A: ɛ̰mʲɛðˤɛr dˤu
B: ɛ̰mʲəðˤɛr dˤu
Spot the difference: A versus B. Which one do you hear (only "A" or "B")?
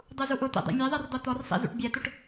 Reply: A